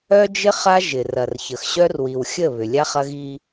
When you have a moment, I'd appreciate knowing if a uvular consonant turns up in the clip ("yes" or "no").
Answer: yes